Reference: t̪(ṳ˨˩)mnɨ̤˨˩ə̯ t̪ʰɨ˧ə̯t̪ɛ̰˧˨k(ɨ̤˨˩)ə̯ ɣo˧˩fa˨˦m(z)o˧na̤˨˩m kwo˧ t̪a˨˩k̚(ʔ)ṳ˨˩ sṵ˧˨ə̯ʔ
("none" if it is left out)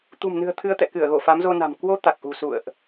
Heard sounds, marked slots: ṳ˨˩, ɨ˧˩, z, ʔ

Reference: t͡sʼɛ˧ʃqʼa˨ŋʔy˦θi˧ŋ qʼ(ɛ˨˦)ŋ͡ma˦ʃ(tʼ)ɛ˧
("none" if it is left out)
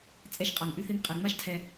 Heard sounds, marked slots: ɛ˨, tʰ

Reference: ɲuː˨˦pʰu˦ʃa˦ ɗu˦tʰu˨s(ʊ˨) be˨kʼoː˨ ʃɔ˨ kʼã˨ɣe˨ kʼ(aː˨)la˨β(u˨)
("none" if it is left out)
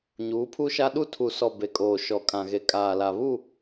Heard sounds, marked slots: ɔ˨, aː˨, u˦˨

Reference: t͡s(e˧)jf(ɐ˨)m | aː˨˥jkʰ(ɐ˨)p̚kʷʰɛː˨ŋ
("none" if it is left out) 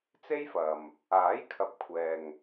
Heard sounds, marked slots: e˥, ɐ˨, ɐ˨

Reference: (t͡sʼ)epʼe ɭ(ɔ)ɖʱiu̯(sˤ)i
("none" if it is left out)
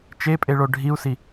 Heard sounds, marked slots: t͡ʃ, o, s

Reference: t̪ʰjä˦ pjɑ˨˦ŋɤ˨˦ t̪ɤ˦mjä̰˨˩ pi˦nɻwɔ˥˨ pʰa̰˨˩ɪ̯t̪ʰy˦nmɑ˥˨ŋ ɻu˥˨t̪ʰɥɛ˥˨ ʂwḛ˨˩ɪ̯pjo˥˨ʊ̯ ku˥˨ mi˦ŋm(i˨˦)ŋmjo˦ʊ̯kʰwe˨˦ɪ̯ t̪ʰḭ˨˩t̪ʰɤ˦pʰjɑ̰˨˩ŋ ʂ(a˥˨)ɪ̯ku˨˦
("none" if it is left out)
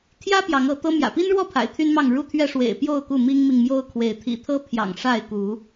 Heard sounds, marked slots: i˨, a˥˨

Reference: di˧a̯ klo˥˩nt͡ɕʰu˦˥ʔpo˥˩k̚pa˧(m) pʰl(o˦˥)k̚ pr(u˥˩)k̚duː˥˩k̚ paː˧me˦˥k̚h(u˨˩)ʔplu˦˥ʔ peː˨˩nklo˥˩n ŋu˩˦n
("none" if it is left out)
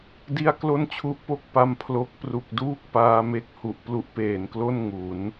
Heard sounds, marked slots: m, o˦˥, u˨˩, u˨˩

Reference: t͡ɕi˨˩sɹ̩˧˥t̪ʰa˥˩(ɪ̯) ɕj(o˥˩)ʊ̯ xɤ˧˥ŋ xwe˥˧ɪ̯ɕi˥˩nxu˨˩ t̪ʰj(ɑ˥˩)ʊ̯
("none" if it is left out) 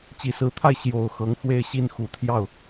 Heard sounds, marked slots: ɪ̯, o˨˩, ɑ˥˩

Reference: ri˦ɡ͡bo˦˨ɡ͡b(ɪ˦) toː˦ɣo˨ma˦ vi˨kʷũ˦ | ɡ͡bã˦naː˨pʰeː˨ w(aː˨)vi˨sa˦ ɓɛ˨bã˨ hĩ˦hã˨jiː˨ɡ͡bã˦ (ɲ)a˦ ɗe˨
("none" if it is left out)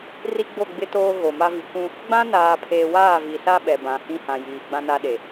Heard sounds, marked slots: ɪ˦, aː˦˨, n

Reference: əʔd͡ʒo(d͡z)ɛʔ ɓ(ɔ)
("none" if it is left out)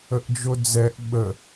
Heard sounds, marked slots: d͡z, ə

